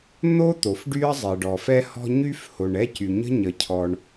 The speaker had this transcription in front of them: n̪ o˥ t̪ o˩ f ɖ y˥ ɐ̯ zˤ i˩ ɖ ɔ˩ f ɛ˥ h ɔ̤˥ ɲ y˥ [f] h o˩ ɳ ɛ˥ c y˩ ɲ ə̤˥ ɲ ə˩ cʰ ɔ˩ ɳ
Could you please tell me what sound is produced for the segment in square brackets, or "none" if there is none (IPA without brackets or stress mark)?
f